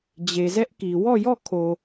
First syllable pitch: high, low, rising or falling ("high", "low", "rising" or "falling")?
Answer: low